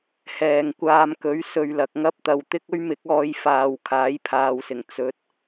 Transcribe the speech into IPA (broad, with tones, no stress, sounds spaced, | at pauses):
h ɛː˨ ŋ kʷ aː˧ m k ɵ˨˥ ɥ s ɵ˧ ɥ l ɐ˨ k̚ ŋ ɐ˥ p̚ t̪ ɐ˨ w t̪ ɪ˥ k̚ ɵ˥ ɥ m ɪ˨˥ k̚ ɔː˧ j f aː˨ w kʰ aː˨˥ j pʰ aː˨ w s ɪ˨˩ ŋ t͡s ɵ˨˥ t̚